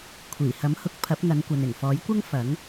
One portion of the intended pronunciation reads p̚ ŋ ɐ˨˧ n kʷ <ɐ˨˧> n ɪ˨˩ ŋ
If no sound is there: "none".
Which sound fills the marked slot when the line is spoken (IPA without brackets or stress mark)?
ɐ˨